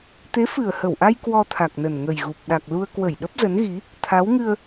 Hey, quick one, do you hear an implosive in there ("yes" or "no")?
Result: yes